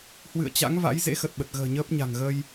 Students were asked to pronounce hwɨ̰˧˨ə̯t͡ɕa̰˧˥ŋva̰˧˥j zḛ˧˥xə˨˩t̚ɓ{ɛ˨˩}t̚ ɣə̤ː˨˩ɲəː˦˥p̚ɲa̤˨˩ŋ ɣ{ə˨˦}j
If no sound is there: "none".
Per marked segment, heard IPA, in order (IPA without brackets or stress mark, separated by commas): ə˨˩, ə˧